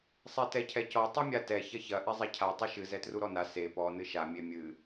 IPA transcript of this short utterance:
sˤ ɛ t ɛ cʰ ɛ c ɔ tˤ i mʲ a t ɛ ç ɐ ç ɐ ʔ ɛ zˤ ɛ cʰ a tˤ ɨ ʃ ɨ z ɛ t r u ɾ ɔ n a s e p ɔ n ɨ ʃ a mʲ e mʲ ɨ

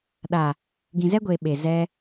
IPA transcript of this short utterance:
ɗ a˨ | ɡ ĩ˨ z ɛ˦ ɡʷ eː˨ ɓ e˨ z ɛ˧

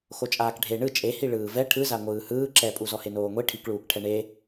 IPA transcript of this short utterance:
x o t͡ʃʼ aː k ɖʱ e ɳ ɯ t͡ʃʼ e h i ɭ ɯː v ɛ ʈʰ ɯ z a ŋʷ ɯː h ɯː ǁ ɛ pʼ u z ɔ h e n oː ŋʷ i ʈʰ i k ɭ uː k ʈʰ ɛ ɳ e

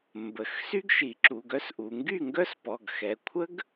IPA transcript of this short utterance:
m b ə˩˧ x s y˥ ɡ ʃ i˩˧ ǁ u˩˧˩ ɡ œ˥ s ʔ u˩˧ ŋ ɡ y˥˩ ŋ ɡ œ˥ s p ɔ˩˧˩ ɡ x ɛ˩˧˩ kʷʰ ə˥ ɡ

